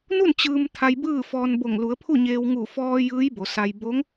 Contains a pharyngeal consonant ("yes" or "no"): no